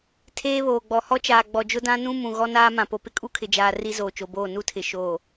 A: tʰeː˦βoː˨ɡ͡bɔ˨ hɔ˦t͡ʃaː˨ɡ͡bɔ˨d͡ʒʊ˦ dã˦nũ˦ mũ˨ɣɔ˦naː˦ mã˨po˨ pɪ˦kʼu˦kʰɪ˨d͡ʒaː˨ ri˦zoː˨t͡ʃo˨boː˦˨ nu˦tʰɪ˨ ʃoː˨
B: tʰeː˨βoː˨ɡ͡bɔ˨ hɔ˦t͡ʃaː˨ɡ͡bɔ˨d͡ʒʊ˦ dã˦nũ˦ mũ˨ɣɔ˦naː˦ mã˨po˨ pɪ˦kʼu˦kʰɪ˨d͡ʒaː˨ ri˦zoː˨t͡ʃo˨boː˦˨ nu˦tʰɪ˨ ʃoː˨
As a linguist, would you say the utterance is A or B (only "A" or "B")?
A